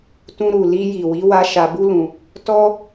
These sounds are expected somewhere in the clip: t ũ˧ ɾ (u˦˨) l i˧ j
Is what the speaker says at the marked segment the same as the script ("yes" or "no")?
no